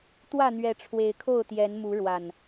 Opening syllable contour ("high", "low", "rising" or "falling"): falling